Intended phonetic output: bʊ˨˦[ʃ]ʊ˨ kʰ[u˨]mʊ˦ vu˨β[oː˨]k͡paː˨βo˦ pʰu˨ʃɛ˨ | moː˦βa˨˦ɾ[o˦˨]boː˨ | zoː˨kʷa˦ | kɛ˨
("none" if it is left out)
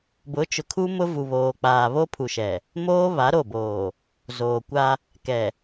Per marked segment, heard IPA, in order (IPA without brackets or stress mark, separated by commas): t͡ʃ, u˦, oː˨, o˦˨